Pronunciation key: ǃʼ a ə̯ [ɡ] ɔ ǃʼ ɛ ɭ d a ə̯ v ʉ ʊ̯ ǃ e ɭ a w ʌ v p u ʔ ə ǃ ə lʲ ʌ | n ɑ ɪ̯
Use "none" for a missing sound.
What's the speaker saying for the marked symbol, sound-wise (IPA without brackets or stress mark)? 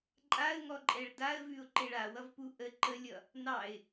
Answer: ŋ